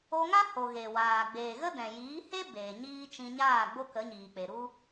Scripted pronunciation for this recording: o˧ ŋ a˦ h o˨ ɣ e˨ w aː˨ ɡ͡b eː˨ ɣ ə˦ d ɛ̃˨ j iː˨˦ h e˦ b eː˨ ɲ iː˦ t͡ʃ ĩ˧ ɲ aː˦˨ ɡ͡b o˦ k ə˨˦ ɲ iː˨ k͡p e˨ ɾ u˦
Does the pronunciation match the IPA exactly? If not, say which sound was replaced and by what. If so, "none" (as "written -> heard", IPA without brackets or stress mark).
none